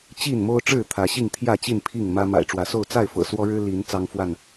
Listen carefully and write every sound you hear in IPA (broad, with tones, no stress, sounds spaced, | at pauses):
t͡ɕ i˥˨ n m o˦ ʊ̯ ʈ͡ʂ ɻ̩˥˨ t̪ʰ ä˨˦ ɕ i˥˨ ŋ t̪ʰ j ä˥˨ t͡ɕ i˥˨ n pʰ i˥˨ ŋ m ä˦ m a̰˨˩ ɪ̯ ʈ͡ʂ w ä˨˦ s o˥˨ ʊ̯ t͡s a˥˨ ɪ̯ f ɤ̰˨˩ s w ɔ˦ ɻ ɻ̩˦ l i˨˦ n t͡s ɑ˦ ŋ f w a˥˨ n